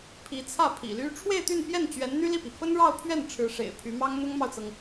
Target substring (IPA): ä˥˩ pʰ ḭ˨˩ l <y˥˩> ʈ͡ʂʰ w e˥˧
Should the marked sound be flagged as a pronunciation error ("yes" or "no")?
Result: yes